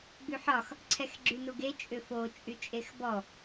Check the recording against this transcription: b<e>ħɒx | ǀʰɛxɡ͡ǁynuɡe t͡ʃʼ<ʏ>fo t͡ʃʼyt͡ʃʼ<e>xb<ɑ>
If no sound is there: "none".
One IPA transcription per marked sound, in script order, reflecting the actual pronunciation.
y, ʏ, e, ɔ

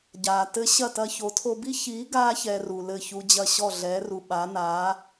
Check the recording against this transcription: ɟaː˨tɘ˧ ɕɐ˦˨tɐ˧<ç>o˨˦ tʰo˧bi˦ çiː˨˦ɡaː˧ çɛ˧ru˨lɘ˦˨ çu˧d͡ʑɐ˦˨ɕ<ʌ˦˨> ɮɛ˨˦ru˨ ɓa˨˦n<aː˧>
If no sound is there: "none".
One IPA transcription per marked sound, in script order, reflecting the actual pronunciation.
ç, ɔ˦˨, aː˨˦

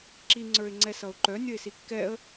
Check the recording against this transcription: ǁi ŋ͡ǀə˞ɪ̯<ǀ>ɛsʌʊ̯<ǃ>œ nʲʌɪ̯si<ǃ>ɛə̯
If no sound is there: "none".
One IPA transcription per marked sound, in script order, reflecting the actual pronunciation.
ŋ͡ǀ, ǃ, kː

